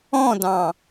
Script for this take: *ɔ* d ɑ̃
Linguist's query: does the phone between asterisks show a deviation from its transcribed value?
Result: yes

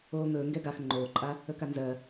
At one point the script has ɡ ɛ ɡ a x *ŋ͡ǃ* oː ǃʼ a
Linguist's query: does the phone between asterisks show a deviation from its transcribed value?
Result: no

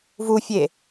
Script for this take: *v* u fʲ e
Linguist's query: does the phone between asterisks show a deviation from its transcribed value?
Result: no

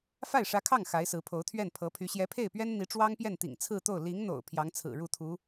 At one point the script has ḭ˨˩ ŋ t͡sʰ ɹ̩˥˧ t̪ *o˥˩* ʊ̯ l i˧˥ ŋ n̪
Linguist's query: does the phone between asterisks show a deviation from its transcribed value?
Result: no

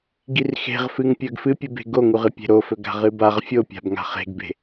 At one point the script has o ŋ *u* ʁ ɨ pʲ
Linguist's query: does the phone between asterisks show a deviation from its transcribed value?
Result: no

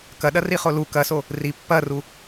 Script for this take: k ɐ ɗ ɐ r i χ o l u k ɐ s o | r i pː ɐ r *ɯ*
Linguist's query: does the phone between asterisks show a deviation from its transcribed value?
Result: yes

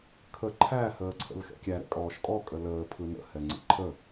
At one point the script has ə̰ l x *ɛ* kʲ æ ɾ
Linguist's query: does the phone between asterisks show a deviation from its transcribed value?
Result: yes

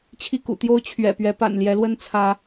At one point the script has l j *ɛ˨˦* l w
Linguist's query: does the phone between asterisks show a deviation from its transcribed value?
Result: no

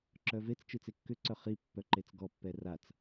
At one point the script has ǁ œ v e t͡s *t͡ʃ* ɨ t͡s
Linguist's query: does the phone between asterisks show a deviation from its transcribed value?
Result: no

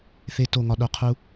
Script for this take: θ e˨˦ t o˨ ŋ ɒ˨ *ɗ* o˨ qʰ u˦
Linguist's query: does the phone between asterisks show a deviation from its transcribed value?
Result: no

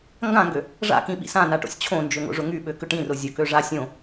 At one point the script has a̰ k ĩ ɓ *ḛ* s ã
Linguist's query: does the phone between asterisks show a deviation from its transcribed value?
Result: yes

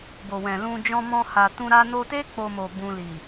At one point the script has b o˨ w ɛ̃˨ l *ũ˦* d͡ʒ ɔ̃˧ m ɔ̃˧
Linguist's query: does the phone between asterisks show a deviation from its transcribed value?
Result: yes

